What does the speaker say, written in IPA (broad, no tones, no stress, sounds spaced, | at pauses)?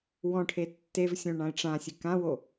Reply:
w ɔ̃ ʈʰ e tː e v sʲ õ ɳ ã ɪ̯ ʈ͡ʂ ã sʲ ɨ k ã w o